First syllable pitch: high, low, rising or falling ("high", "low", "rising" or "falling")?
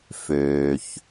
low